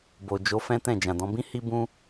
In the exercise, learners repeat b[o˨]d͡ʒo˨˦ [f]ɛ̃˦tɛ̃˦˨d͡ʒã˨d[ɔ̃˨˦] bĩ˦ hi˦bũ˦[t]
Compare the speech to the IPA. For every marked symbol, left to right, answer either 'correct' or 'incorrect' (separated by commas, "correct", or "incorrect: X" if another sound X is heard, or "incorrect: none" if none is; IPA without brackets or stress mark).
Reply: correct, correct, correct, incorrect: none